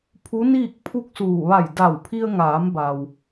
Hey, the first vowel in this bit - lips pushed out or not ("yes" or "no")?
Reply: yes